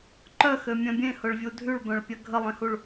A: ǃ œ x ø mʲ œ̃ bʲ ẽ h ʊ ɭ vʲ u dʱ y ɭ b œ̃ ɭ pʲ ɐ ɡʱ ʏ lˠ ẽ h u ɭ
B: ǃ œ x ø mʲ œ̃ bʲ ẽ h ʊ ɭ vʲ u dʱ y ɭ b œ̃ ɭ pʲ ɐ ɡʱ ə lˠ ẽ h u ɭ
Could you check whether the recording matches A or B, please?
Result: B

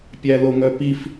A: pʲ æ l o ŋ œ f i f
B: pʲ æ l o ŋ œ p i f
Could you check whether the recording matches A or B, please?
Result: B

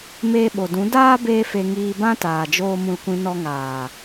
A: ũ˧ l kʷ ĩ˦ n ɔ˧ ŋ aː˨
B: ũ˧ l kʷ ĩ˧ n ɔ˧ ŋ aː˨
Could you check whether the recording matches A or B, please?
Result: B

